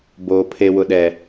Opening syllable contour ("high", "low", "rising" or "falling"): low